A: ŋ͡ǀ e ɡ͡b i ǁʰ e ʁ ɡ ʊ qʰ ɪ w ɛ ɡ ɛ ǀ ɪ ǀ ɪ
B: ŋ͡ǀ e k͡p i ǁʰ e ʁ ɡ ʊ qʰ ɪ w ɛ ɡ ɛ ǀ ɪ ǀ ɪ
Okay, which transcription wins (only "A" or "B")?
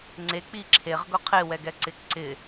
B